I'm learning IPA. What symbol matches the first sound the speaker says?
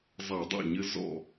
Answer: zˤ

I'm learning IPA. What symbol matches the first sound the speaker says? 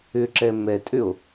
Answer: ʏ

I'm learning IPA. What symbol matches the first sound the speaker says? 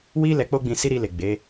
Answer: w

